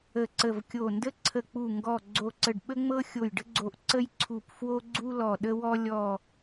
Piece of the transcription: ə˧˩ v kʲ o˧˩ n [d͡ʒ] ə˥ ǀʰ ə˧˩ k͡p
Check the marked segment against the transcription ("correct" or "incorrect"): incorrect